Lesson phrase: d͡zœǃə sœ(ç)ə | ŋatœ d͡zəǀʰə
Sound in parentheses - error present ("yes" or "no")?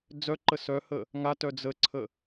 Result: yes